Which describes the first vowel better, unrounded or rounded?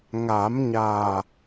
unrounded